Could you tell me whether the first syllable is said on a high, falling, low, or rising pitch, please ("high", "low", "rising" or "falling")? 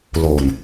low